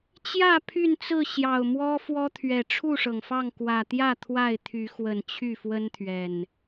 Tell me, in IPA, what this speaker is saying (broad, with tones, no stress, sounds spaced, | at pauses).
t͡ɕ j ä˥˨ pʰ y˥˨ n t͡s ɹ̩˥˨ ɕ j ɑ˨˩ ʊ̯ m w ɔ˦ f w ɔ˦ t̪ʰ ɥ ɛ˨˩ ʈ͡ʂʰ u˥˨ ʂ ɤ˩ ŋ f ɑ˥˨ ŋ k w ä˨˩ t̪ j ä˥˨ t̪ʰ w a˥˨ ɪ̯ t̪ʰ y˨˦ x w ə˨˩ n t͡ɕʰ y˥˨ f w ə˦ n t̪ʰ ɥ ɛ˨˩ n